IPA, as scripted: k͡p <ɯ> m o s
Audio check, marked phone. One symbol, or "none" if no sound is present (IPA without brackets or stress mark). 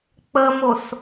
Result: ə